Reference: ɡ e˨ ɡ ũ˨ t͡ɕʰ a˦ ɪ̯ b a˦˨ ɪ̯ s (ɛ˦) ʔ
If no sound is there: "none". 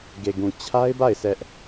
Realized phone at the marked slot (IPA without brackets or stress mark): ɛ˦